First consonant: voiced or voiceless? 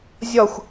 voiced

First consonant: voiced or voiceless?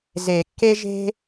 voiced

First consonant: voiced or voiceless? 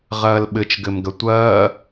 voiced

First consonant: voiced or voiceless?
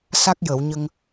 voiceless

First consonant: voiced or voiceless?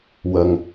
voiced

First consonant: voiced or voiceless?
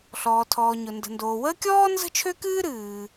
voiceless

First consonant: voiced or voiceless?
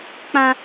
voiceless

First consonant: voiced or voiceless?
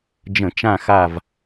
voiced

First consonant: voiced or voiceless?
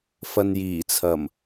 voiceless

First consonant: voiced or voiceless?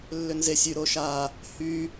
voiced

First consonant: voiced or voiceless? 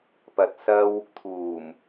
voiceless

